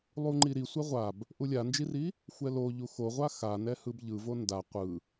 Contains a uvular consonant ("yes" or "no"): yes